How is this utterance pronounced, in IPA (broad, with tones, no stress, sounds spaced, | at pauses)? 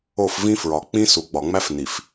o˦˨ f v ĩ˦ f ɹ ɒ˨ k͡p ĩ˦ s u˨ ɡ͡b ɒ˨ ŋ͡m æ˦ f n i˨ f